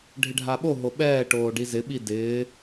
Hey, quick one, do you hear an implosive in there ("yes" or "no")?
yes